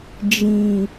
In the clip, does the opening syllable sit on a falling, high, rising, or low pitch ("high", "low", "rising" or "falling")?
low